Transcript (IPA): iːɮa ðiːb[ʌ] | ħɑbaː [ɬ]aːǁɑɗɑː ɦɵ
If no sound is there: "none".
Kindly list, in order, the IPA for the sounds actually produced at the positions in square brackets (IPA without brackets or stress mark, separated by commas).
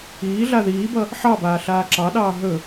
ʌ, ɬ